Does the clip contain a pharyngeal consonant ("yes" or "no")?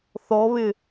no